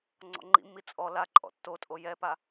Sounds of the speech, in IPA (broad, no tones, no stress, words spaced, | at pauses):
ŋ͡ǀɔ̰ŋ͡ǃḭmːi t͡sʼɔ laǃʼɔ̰ tːotʼo jɛpa